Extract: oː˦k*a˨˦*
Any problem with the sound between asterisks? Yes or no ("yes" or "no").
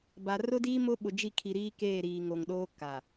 yes